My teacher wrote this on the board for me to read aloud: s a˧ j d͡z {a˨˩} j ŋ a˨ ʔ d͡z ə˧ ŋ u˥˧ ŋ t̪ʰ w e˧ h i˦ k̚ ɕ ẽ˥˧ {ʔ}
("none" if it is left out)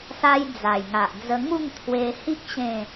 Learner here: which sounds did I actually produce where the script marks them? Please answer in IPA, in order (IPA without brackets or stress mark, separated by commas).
a˨˩, none